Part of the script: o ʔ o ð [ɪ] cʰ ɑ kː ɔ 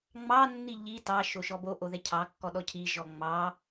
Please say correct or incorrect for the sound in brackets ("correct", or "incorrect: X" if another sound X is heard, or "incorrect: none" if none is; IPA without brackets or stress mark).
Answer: incorrect: ɛ